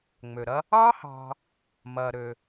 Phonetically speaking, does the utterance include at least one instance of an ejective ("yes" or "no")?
no